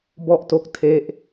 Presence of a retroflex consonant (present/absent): absent